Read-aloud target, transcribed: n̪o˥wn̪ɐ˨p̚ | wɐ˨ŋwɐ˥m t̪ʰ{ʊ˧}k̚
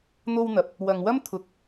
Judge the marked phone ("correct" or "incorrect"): incorrect